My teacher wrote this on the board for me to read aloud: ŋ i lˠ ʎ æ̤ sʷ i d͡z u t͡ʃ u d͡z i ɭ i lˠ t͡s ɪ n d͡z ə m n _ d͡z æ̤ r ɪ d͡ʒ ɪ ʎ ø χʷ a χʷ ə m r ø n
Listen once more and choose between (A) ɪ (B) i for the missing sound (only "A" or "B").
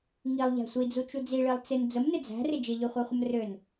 A